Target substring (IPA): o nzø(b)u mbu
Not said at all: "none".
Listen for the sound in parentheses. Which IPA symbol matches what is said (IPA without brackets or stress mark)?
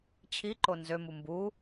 m